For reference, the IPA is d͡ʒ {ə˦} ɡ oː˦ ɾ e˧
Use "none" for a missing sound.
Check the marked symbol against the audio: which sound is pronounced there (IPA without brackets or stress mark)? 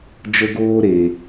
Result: ə˦